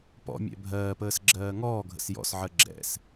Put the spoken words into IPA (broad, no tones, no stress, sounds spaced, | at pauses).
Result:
p ɔ̰ mʲ ɛ̰ bʱ ɜː p əː s ɡ͡ǁ ɜː ŋ ɔː ɡʱ ə̰ s j ɔ̰ s ʕ ɜ ɡ͡ǁ ɛ̰ s